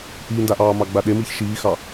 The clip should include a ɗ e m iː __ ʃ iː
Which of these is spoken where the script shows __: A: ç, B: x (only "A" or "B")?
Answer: A